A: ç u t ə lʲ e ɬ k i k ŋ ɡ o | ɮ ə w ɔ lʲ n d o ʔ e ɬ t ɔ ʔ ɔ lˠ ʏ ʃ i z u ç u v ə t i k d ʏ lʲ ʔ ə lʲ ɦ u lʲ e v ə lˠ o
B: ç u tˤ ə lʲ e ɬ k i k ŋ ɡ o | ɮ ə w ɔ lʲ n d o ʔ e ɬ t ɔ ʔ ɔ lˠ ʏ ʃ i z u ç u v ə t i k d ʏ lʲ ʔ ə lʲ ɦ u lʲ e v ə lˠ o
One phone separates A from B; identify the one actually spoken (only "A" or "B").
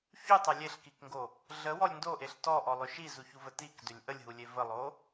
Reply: B